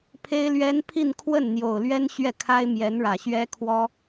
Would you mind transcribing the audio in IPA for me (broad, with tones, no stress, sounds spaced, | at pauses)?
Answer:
pʰ e˥ ɪ̯ l ɥ ɛ˥ n pʰ i˥˧ n kʰ w ə˥˩ n n̪ j o˨˩ ʊ̯ l ɥ ɛ˥ n ɕ ɥ ɛ˥˩ kʰ a˥ ɪ̯ m j ɛ˧˥ n ɻ ä˨˩ ɕ ɥ ɛ˥ kʰ w ɔ˥